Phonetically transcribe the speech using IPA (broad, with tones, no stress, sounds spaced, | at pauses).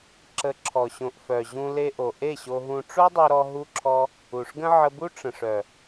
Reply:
ǁ ə˨˦ ǁʰ ɔ˨ ɕ õ˨ ʔ f œ˨ ʑ ũ˧ l e˧ ʔ o˨ ʔ e˦˨ ɕ o˧ ɦ ũ˧ ʈ͡ʂ o˦ dˤ u˧ ɾ ɔ˧ ɦ u˧ ǁʰ ɔ˧ | u˨ ʂ ɡ ə̃˦ ʕ ə˧ b u˦ ʈ͡ʂ ə̃˨ ʂ œ˨